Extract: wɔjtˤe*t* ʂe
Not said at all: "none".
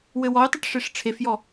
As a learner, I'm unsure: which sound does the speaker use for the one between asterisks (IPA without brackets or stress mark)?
ʈ